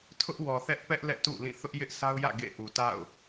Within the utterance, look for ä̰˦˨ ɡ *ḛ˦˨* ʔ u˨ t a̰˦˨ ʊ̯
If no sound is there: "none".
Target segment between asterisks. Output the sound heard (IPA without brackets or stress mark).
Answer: ḛ˦˨